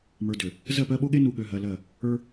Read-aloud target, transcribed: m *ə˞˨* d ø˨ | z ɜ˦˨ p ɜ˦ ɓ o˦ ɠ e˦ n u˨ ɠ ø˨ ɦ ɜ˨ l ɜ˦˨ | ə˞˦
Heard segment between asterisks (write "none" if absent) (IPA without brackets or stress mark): ə˞˨